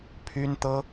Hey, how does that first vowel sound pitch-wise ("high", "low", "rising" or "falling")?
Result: high